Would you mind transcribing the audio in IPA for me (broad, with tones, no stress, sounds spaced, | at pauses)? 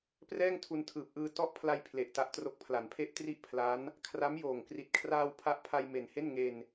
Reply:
p r ɛː˥˩ ŋ tʰ u˧ n tʰ ɯː˨˩ p̚ ʔ ɯː˧ t ɔ˥˩ ʔ pʰ l a˧ j pʰ l e˨˩ ʔ t a˦˥ ʔ t r o˦˥ k̚ pʰ l a˩˦ n pʰ e˥˩ ʔ t r i˥˩ ʔ pʰ l a˦˥ n | kʰ r a˦˥ m j oː˨˩ ŋ k r i˨˩ t̚ kʰ r aː˧ w pʰ a˦˥ ʔ pʰ a˧ j m e˨˩ n h e˥˩ n ŋ e˧ n